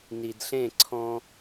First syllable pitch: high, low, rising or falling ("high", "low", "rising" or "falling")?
low